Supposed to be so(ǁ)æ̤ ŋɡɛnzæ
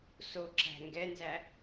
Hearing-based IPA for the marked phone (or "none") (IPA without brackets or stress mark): ǁ